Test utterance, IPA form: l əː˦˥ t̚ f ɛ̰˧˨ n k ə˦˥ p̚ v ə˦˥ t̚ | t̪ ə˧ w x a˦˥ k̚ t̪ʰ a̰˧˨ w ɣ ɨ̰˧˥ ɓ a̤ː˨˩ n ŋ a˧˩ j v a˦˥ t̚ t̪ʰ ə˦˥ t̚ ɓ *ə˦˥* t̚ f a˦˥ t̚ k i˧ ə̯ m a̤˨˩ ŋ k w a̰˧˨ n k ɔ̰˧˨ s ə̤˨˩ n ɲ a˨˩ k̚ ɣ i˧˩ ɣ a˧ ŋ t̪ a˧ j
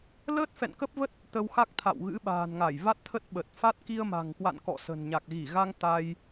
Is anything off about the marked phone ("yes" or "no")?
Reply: yes